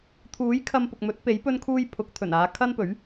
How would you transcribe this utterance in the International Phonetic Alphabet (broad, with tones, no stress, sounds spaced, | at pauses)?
t̪ʰ uː˨˥ j kʰ ɐ˧ m p ʊ˨ k̚ m ɵ˨˥ t̚ p e˨˥ j p ɵ˥ n kʰ uː˥ j pʰ ʊ˨˥ k̚ t̪ʰ ɵ˨˩ n aː˨˧ kʰ ɐ˥ n p ɵ˨˥ ɥ